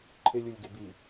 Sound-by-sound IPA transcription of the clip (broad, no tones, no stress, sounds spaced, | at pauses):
ǃʰ ɪ lʲ u lʲ ɡ ɪ b i